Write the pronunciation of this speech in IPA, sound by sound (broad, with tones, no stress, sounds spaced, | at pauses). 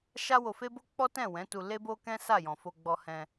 ʃ a˦ w o˧ f e˦ b o˦ k͡p ɔ˦ t ɛ̃˦˨ w ɛ̃˨˦ t u˧ l e˦ b o˦ k ɛ̃˦ s a˦˨ j ɔ̃˨ f o˧ ɡ͡b ɔ˧ h ɛ̃˧